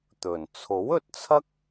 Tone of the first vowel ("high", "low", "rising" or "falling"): low